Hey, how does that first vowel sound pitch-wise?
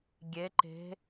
rising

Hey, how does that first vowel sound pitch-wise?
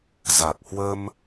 low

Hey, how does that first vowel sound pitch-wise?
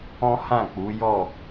high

